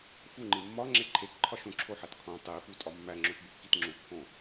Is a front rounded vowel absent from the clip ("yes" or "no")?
yes